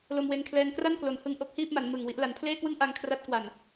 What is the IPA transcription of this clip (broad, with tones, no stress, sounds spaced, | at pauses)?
l o˧ m w e˧ n kʰ l ɛː˧ ŋ k r a˥˩ n k l o˩˦ n h ɯ˧ ŋ ʔ o˦˥ k̚ h iː˥˩ p̚ m a˩˦ n m ɯ˨˩ ŋ w i˦˥ ʔ l a˩˦ n pʰ l eː˥˩ k w ɯ˥˩ ŋ ʔ a˧ ŋ kʰ r a˦˥ t̚ k w a˨˩ n